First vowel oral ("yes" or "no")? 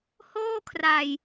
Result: yes